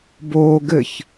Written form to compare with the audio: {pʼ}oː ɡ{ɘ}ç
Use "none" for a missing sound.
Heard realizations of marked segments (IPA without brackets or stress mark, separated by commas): b, ɘ